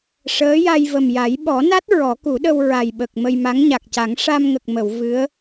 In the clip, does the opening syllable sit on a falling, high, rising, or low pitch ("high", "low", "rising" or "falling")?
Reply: rising